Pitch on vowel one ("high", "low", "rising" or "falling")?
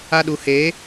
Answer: high